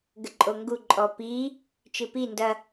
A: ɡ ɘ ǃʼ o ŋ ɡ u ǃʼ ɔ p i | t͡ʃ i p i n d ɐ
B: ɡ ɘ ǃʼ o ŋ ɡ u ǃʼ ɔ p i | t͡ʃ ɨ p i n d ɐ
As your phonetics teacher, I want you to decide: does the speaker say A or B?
B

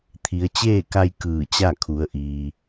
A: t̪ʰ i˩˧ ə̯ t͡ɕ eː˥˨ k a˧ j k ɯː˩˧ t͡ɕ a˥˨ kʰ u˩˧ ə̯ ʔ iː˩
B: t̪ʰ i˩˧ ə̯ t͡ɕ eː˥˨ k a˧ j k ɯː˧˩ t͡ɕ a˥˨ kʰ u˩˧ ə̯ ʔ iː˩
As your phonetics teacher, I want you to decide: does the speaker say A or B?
B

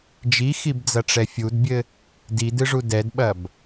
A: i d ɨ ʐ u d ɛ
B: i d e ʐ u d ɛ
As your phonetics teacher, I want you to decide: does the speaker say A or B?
A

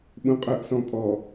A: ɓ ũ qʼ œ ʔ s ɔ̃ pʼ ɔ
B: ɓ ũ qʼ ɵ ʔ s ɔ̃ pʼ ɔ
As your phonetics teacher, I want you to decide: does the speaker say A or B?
A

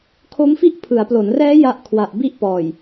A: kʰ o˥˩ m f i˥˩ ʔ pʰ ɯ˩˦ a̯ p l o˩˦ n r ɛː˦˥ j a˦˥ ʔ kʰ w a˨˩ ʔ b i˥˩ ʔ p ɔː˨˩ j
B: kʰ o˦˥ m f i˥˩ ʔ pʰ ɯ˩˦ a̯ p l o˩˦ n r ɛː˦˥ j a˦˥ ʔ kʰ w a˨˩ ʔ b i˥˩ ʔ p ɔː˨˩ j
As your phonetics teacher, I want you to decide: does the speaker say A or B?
B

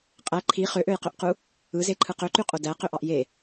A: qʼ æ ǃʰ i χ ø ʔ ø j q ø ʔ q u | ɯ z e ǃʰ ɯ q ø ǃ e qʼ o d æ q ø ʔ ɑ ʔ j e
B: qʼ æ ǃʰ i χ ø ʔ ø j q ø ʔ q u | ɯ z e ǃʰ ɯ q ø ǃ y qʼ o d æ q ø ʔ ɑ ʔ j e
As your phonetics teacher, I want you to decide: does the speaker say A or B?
B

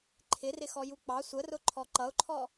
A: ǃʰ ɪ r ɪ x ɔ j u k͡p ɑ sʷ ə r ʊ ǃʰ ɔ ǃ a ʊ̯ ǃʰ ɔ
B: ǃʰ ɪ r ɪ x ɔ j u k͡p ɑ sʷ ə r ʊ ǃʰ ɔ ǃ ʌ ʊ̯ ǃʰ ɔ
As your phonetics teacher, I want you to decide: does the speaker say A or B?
B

